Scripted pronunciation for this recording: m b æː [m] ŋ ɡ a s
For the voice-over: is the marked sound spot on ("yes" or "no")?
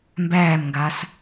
yes